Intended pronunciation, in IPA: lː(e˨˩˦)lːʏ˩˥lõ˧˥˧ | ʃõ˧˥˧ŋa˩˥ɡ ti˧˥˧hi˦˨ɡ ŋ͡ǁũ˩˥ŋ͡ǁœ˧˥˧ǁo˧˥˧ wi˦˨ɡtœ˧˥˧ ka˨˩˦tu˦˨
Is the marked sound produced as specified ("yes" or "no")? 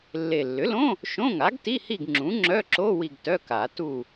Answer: no